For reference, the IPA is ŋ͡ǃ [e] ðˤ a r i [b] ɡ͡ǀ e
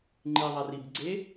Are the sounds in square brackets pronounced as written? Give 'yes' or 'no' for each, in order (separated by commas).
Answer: no, yes